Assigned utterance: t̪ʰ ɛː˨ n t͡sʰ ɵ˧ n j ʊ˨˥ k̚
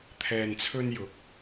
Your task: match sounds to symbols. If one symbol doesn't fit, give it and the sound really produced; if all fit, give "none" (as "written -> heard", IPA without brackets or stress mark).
none